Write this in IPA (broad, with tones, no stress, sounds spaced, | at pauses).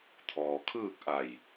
t̪ʰ ɔː˩ kʰ ɯː˥˨ k̚ ʔ a˧˩ j